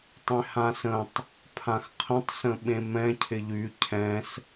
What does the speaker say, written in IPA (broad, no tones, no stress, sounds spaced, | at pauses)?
tˤ ẽ h ã s ə̃ tˤ | pʰ ã x qʰ ə̃ tˤ s ə̃ ɓ ẽ m ɛ̃ cʰ ɪ ʎ y cʰ ɛ̃ s